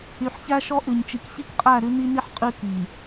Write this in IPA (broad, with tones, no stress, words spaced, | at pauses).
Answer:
y˨ħçæ˦ʃɔ˦ʔʉ˨ɲ t͡ʃi˨kçi˦kqʼæ˦˨ ɾʉ˦ni˦ni˦ħ qʼʉ˦ ki˨